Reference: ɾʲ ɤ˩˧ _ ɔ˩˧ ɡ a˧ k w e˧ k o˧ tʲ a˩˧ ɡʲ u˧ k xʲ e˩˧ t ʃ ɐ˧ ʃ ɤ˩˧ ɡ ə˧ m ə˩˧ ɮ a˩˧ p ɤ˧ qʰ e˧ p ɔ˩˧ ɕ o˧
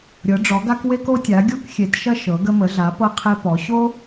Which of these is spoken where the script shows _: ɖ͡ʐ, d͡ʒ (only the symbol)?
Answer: ɖ͡ʐ